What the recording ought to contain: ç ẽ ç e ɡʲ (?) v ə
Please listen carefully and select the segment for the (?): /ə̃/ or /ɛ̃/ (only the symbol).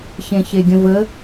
ə̃